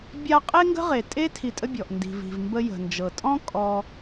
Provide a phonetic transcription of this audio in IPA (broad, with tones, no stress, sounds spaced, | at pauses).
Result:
bʲ a˥ qʼ e˥ ŋ ɡ ə̤˥ ʁ e˩ tʼ e˥ tʰ i˧ tʼ ə˥ bʲ ɔ˩ ʔ n d i̤˩ v i̤˩ v m b ə˧ j ə̤˩ n d͡ʒ ɤ˩ tʼ ɔ̃˥ kʼ ɔ˧